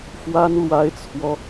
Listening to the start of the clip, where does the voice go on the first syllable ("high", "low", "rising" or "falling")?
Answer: high